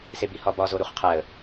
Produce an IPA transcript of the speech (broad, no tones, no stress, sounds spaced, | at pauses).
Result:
s e b i h ɒ b ɒ z o ɾ u χ qʰ æ ə̯